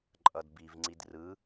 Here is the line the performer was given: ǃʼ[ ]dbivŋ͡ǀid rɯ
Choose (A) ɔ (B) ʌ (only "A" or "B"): B